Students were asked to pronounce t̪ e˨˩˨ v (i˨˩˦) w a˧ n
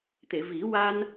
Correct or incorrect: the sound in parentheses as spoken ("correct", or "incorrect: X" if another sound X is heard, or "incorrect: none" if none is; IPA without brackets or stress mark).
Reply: correct